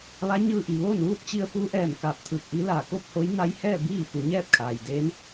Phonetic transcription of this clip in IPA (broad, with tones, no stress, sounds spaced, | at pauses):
ʋ a˧˥ ɲ ɯː˧ ʔ i˩ ʋ oː˥˨ n ʋ uː˥˨ t̚ t͡ɕ i˧ ə̯ f u˧˥ ʔ ɛː˧˩ m k aː˧˩ p̚ t̪ʰ ɯː˧˩ k̚ ʔ i˧˥ l aː˧˩ k o˥˨ p̚ h o˧˥ j n a˧˥ j h ɛː˥˨ b iː˥˨ f u˩˧ ɲ ɛː˥˨ p̚ kʰ aː˩ j d eː˧˥ n